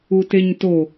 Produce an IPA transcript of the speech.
u t e ɲ t o

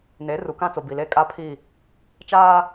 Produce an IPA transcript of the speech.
n e˨˦ r u˨ k ã˦ t͡s o˨ b i˨ l eː˦ kʼ aː˦ pʰ i˦˨ | t͡ʃ aː˦

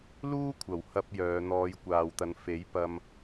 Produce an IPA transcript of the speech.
l uː˥ kʷʰ ɐ˨˩ w h ɐ˧ p̚ j œː˨˧ n̪ ɔː˨˧ j kʷ aː˨ w t̪ ɐ˨˧ n f e˨˥ j p ɐ˧ m

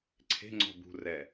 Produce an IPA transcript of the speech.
ǀʰ e̤ ŋ͡ǀ ɔ̤ b ṳ r ɛ

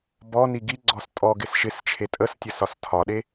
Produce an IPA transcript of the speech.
b ɔ n i ɡ i ɡ͡ǀ ɔ s tʼ ɔ ɡ ɪ s ʃ ɪ s t͡ʃʰ e tʼ ə s tʲ ə s ɒ s tʰ ɒ ɗ e

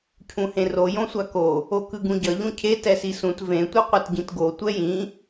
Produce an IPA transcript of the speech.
cʰ ũ h ẽ r o j õ sʷ a k o | o k ɯ ɡ ũ ɟ ʌ ʎ ũ cʰ e t ɛ s i s ũ t v ẽ tʷ ɯ qʷ ʌ t ɟ ĩ t ɡ o tʷ ɛ j ĩ

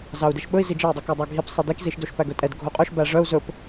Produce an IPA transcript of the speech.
z ɑ u̯ d e ʃ ɓ ɵ i̯ z i d͡ʒ ɛ y̯ dˤ ʉ k æ dˤ ɑ ɡʱ i p sˤ e d e k z i ʃ d o ʃ p æ ɡ ɵ tʼ ɛ d ɡʱ o qʼ œ ʃ b æ ʐ œ u̯ z ɵ p

